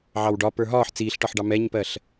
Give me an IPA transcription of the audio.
ʕɑwɖɒ pə˞ɦɒːħ t͡siːɬʈɒħɖɑ mɛɲpɜɬ

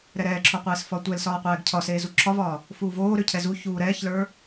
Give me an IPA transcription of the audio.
ɾɛɾɛːǁʰoqʷeːs fɒtʷɛlsɒːqʷɛːɡ cʰɒ seːzuǁʰɒvɒː | fuːvoːɾø cʰɛzu çuːɾɛːçlə˞

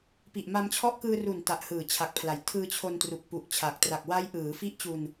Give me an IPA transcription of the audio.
pi˨˩ʔma˧mt͡ɕʰɔ˦˥ʔ kɯː˧ru˨˩n ta˨˩ʔhɯː˨˩t͡ɕʰa˨˩k̚pʰla˩˦j tʰɯː˧t͡ɕʰo˧n tru˨˩k̚pu˨˩ʔt͡ɕʰa˨˩k̚ tra˨˩k̚ wa˦˥jʔɯː˩˦fi˦˥ʔt͡ɕu˧n

